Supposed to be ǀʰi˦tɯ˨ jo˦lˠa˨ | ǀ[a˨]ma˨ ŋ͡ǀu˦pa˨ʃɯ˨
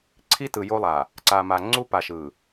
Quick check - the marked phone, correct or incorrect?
correct